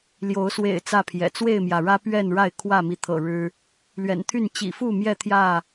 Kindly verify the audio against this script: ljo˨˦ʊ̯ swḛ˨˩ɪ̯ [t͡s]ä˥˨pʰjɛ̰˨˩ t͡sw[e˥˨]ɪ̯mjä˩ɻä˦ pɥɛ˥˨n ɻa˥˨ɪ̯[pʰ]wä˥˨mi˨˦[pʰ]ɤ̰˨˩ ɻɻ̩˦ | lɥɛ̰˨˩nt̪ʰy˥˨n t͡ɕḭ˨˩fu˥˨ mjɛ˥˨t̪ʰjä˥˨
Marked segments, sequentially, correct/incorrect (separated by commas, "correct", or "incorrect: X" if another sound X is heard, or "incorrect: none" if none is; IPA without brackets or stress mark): correct, correct, incorrect: kʰ, incorrect: t̪ʰ